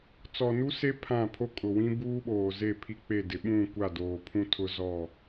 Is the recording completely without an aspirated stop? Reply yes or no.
no